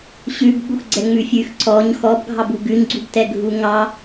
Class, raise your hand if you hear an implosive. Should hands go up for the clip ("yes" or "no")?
yes